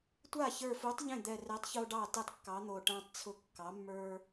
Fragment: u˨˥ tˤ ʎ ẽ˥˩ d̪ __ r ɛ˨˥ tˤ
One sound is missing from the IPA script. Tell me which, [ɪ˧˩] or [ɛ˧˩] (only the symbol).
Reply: ɛ˧˩